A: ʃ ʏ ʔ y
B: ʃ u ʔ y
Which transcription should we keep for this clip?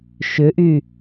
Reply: A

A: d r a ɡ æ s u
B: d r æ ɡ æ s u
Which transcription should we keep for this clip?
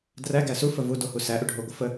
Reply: B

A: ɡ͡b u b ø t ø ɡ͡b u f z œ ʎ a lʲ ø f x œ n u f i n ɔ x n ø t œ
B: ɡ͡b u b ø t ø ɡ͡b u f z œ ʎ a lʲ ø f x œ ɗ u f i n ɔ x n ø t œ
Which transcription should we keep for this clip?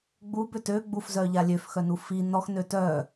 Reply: A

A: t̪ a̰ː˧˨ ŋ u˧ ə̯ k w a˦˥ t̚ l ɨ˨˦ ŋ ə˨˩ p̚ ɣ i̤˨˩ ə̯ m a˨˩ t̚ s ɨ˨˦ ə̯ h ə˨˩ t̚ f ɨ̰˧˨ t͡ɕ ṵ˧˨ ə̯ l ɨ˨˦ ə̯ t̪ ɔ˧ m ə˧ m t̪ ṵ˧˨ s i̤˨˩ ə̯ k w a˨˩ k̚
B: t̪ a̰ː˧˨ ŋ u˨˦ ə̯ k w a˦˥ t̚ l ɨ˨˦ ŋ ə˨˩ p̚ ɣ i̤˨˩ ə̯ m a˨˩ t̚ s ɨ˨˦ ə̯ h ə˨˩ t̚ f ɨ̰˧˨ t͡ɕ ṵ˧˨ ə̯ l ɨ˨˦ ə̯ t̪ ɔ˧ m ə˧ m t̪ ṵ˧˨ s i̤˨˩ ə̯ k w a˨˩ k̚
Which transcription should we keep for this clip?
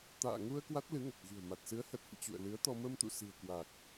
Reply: A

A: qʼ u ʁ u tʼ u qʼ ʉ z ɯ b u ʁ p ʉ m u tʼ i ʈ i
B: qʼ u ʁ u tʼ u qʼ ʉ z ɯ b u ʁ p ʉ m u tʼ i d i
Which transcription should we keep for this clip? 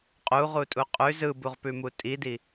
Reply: B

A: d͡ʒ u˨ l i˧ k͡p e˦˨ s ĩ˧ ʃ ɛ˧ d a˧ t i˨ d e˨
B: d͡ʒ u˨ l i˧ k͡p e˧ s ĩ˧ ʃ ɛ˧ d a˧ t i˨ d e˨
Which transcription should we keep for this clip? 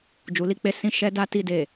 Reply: B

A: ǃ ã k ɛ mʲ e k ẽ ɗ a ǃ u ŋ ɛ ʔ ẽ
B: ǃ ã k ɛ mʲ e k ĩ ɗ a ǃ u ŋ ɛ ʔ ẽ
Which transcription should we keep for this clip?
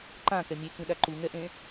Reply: B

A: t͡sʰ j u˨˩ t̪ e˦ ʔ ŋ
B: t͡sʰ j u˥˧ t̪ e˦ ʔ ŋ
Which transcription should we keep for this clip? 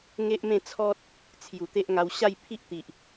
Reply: A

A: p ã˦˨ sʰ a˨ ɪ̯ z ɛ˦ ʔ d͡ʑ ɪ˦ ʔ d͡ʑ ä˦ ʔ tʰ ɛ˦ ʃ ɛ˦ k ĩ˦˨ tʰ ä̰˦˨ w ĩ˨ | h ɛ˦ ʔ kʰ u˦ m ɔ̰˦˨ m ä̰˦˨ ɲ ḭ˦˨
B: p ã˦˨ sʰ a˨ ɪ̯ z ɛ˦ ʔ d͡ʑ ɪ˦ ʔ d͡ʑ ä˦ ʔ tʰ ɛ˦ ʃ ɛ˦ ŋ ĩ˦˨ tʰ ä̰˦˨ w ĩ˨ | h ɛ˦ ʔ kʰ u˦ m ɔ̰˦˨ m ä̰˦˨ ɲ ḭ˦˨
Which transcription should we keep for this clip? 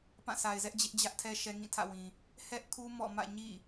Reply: B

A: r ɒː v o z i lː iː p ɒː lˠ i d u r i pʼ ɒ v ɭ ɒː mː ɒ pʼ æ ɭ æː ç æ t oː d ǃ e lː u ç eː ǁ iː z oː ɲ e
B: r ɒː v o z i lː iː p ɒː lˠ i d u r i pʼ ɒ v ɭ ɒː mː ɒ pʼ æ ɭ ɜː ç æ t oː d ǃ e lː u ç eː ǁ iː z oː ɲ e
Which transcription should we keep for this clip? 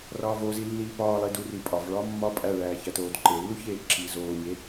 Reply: A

